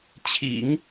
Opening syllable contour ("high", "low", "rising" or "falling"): low